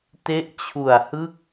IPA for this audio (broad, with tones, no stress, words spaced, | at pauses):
te˦˥ʔt͡ɕʰu˨˩a̯hɯ˥˩k̚